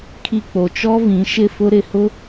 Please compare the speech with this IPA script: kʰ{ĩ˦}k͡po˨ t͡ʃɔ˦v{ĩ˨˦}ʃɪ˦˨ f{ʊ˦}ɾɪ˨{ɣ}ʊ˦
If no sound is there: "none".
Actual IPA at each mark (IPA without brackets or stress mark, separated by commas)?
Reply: i˦, ĩ˨˦, ʊ˦, h